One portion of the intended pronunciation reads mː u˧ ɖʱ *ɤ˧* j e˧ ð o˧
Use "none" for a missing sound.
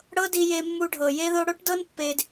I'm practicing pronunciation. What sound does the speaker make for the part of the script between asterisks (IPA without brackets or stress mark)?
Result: ɤ˨